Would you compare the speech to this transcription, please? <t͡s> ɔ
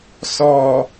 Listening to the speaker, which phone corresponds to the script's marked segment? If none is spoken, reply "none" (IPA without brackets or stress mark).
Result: s